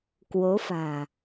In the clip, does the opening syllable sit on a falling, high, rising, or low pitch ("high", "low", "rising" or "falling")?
rising